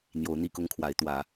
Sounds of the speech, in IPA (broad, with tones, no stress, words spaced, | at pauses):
n̪jo˨˦ʊ̯n̪i˥˨kʊ˦ŋkʰwa˨˦ɪ̯ t̪wä˨˦